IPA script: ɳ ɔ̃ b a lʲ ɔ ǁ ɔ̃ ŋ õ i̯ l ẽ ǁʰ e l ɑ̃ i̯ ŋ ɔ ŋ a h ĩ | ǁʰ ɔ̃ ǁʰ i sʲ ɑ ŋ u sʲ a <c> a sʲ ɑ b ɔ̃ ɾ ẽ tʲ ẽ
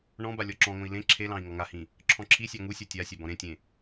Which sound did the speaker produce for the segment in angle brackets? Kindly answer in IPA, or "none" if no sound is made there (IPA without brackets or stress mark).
tʲ